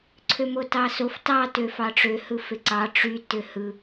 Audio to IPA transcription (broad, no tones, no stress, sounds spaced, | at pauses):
ǀʰ ø m o t ɑ s o f t ɑ t ø f ɑ ʈ͡ʂ ø h ɯ f e ǀ ɑ ʈ͡ʂ y t ø h ɯ